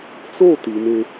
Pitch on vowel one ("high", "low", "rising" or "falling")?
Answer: falling